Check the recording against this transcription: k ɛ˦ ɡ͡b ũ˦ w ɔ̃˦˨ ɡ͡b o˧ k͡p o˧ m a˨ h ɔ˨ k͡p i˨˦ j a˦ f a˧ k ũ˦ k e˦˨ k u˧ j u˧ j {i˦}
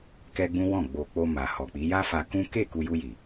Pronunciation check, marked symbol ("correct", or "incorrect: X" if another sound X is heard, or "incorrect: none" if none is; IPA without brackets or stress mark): incorrect: i˨